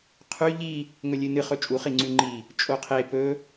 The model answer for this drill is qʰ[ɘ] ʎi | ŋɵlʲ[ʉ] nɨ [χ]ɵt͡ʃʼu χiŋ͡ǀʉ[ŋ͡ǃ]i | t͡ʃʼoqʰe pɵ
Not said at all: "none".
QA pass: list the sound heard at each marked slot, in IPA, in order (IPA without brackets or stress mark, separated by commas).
ʉ, ɨ, χ, ŋ͡ǃ